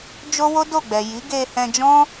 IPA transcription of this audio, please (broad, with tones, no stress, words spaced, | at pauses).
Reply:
d͡ʒo˦wo˦do˦˨ɡ͡bɛ˨ ji˨˦ɡe˧hɛ̃˧d͡ʒɔ̃˦